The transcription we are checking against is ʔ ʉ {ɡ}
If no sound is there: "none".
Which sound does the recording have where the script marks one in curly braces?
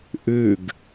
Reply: ɡ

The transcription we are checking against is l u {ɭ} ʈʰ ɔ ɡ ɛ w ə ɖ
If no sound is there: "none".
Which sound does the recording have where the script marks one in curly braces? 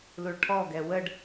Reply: ɭ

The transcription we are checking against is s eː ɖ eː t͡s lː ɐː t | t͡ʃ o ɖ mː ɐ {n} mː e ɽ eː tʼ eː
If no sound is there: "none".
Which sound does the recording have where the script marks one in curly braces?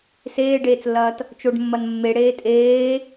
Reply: n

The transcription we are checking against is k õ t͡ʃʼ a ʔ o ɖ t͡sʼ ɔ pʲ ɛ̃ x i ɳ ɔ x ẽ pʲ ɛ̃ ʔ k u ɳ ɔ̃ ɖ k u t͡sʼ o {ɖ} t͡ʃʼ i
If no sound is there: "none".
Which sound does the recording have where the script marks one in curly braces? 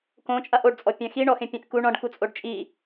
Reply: ɖ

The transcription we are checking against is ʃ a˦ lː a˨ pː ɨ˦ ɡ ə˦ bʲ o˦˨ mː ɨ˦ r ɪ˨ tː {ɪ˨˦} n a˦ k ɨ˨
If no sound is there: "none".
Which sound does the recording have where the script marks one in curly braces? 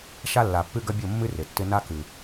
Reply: ɪ˦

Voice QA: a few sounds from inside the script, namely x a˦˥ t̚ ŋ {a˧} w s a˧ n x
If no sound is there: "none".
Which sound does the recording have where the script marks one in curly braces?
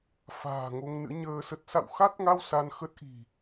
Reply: a˧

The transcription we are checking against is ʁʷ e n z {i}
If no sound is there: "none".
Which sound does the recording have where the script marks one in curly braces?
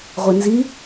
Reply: i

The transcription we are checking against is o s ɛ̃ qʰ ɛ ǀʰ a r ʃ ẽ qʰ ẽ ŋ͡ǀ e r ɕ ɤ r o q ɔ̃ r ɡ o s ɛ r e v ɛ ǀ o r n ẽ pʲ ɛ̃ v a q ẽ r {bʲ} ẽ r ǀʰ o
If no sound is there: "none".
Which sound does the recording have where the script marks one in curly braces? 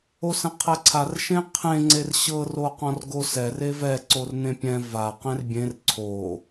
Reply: bʲ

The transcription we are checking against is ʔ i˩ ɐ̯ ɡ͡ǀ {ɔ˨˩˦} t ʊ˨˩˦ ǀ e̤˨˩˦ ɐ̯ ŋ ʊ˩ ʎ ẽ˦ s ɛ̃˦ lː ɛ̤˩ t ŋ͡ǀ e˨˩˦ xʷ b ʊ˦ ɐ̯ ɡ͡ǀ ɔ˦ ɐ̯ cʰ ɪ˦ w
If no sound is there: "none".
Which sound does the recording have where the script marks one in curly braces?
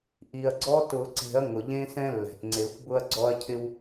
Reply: ɔ˦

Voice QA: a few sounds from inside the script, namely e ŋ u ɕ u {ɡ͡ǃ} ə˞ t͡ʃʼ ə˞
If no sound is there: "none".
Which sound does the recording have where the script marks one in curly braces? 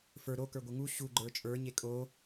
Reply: ɡ͡ǃ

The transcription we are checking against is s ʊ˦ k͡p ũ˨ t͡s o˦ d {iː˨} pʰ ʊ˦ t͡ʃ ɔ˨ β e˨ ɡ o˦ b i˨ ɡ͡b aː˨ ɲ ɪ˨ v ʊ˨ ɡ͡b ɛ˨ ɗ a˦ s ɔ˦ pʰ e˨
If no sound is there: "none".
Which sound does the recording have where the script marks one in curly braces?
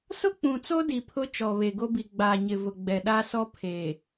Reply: i˨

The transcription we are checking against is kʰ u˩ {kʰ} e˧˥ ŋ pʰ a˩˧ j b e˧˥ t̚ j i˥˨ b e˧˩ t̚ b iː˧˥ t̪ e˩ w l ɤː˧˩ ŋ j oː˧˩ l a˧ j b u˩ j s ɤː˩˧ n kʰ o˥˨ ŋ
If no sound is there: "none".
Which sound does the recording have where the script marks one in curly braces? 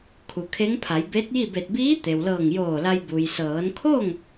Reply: kʰ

